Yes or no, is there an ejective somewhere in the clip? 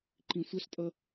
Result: yes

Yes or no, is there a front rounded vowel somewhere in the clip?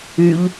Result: yes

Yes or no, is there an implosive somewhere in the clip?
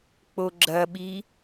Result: yes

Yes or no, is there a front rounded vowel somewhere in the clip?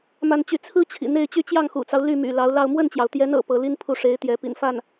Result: yes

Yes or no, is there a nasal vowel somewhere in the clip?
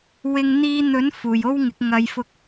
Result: no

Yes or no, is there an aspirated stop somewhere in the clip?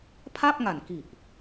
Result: yes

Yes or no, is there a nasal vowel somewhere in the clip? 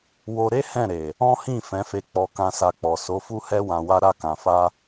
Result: yes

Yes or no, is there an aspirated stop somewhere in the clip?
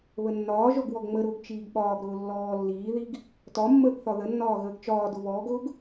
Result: no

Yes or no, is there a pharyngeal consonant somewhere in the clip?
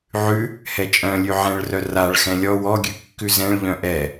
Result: yes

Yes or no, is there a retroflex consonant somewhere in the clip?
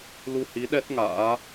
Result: no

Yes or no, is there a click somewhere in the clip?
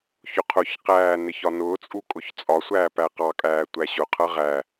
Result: no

